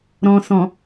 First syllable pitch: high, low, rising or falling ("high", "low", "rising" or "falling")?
low